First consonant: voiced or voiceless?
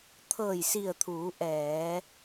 voiceless